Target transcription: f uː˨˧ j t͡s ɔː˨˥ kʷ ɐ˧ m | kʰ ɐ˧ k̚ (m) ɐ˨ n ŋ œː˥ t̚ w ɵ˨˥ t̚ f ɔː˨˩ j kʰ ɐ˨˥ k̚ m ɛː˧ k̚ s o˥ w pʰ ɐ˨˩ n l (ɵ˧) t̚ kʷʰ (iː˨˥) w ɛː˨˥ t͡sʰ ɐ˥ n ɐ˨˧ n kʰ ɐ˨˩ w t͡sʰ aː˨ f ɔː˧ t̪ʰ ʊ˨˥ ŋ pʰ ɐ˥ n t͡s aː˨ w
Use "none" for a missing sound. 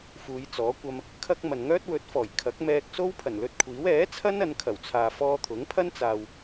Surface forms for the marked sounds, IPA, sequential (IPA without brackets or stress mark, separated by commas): m, ɵ˧, iː˨˥